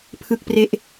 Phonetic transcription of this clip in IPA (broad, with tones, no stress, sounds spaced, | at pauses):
pʰ ɯ˦˥ k̚ p r e˦˥ ʔ